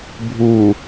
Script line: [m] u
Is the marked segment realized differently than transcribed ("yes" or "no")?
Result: yes